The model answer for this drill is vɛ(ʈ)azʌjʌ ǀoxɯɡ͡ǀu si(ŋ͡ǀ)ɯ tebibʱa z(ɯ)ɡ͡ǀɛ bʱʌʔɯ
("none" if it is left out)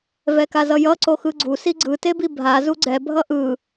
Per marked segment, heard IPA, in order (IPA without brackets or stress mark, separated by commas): k, ɡ͡ǀ, u